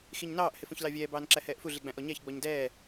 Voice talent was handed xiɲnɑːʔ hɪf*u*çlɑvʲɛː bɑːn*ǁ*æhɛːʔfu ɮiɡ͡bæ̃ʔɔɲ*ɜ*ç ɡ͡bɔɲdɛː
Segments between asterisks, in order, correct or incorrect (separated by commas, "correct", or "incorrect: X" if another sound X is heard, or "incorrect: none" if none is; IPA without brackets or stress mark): incorrect: ũ, correct, incorrect: æ